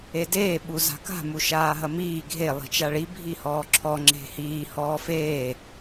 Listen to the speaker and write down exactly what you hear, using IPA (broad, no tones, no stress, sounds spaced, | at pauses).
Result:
e d eː ɓ u z a̤ k a̤ m u ʃ aː ɦ ɐ m iː ɡʱ e lˠ i̤ t͡ʃ a ɭ i bʱ i h ɔː ǁʰ ɔ ŋ͡ǁ e̤ h iː h ɔː f eː